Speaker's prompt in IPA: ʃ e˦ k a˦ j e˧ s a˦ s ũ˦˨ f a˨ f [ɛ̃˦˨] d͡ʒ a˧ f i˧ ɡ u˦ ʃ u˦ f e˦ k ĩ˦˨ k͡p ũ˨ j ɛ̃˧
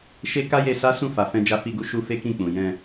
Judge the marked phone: incorrect: ɛ̃˧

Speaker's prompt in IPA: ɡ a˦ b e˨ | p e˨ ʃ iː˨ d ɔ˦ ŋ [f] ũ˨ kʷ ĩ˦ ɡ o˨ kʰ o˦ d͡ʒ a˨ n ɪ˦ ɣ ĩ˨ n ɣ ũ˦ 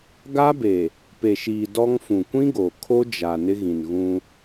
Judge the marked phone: correct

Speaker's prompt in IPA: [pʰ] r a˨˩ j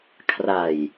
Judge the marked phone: incorrect: kʰ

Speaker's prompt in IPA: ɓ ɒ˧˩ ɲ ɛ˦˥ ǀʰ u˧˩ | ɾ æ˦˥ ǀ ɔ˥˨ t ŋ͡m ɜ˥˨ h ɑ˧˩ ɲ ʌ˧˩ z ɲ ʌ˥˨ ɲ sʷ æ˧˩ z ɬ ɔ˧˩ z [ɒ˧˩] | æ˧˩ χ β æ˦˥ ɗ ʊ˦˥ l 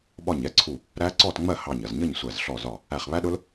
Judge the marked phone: correct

